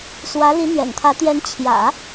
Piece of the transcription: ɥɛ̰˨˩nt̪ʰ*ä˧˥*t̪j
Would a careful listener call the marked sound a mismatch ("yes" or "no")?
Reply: no